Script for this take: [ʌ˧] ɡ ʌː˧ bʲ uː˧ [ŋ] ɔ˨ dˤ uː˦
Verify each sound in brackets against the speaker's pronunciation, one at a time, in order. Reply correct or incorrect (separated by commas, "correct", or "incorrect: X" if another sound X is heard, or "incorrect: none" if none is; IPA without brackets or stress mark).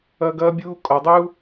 correct, incorrect: kʼ